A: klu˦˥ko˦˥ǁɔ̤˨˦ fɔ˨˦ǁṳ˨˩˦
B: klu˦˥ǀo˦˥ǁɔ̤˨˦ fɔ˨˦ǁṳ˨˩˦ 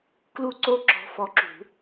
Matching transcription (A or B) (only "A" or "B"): B